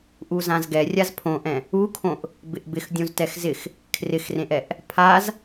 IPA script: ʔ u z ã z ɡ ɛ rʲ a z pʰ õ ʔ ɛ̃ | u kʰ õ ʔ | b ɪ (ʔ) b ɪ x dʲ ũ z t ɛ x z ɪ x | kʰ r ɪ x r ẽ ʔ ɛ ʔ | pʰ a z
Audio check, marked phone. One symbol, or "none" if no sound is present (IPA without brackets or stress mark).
ʔ